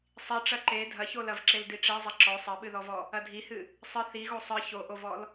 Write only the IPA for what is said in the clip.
sˤiʈ͡ʂɐ ǃe dʱɐçolɐvǁel diʈ͡ʂezˤɐ ǁɔ sˤɐɓɨðɔvɔ | ɐdʱihɨ | sˤɨ θiɣo sˤɨ çoʔovɔl

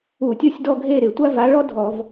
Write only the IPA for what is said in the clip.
u˧˩˧tʲo˦˨sʲdɔ˦˨ɡʱe˦˨ ɾɪ˧˩˧tʷa˥va˧˥ ɭɔ˥ dʱɔ˧˩˧v

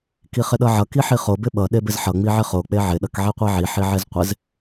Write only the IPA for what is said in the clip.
kiχɪɗʌʕʌ kiħiχo bɪɓʌ ɗebɪzħʌ ŋ͡miʕɪχo k͡peʕɪ ɗʌkʕiqʷiʕi ħiʕezqʷɪz

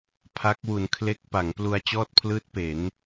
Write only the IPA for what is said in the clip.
pʰa˦˥k̚wu˧n kʰle˦˥k̚ pa˩˦ŋplu˧a̯ t͡ɕɔː˥˩t̚pʰlɯː˦˥t̚ pe˩˦n

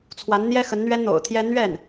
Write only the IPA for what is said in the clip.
t͡sʰwa˧˥nn̪jɛ˥xə˧˥n n̪ɥɛ˥nn̪o̰˨˩ʊ̯t̪ʰjɛ˥ n̪ɥɛ˥˩n

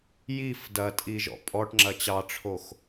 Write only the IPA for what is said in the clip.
jif dɐtʼi ʒɔ̰pʼɔʈŋ͡ǁɐ t͡ɕɑʈ͡ʂʰox

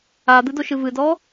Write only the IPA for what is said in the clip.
ad̪ɨdoʃɨ vɨdɔ

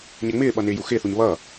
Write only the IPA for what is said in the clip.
ɲɛŋ͡mɪːɓʌ nɪːjuxɪːθuɲ βʌː

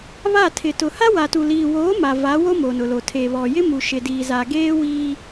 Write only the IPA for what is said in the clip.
βa˦˨tʰɪ˨ tʊ˨ha˦wa˨tu˨ liː˨woː˨˦ ma˨va˨˦wo˦ mo˨nʊ˨lo˨ tʰeː˨βɔ˨jɪ˦ mu˨ʃɪ˨diː˨za˨ ɡeː˦ wiː˦

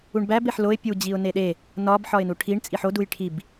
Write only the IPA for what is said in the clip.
uɳbæb eħloɪ̯ pʲu d͡ʑiʊ̯neɗe | nɒb ħɒɪ̯nuʈʰiɳ t͡sʼiħo dujʈʰib

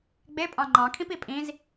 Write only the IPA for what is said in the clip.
ɡ͡bepʼɑ̃ ŋ͡ǃɑ̃kʰĩpi pʼĩz

